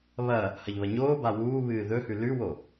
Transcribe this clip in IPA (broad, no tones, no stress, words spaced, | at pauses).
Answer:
βɐ | hɐʎβɐɲoːba wuːβɨː ðɵhʉ lʉwo